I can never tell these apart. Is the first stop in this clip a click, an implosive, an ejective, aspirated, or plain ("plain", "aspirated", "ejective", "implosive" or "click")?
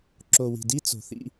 click